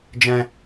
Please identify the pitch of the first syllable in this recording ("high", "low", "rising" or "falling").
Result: high